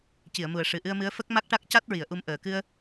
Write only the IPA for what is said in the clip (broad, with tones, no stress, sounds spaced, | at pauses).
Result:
c i˨˩˨ ə̯ m u˨˩ ə̯ ʂ ɨ˨˩ ʔ ɨ˧ ə̯ m ɨ˧˥ ə̯ f ə˦˥ k̚ m a˦˥ k̚ ʈ a˦˥ k̚ c a˦˥ t̚ ɹ i˨˩˨ ə̯ ʔ u˧ m ʔ əː˨˩ k ɨ˧ ə̯